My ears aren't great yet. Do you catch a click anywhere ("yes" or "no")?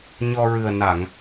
no